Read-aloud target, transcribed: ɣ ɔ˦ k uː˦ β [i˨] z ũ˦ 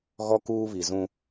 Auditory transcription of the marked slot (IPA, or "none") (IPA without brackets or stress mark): i˨